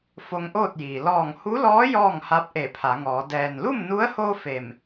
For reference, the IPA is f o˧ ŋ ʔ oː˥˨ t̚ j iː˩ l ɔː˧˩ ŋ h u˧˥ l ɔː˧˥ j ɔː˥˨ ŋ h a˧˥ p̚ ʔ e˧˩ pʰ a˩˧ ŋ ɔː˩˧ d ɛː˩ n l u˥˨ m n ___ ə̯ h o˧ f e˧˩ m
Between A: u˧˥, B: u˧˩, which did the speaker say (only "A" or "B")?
A